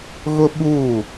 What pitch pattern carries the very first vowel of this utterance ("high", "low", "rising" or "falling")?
high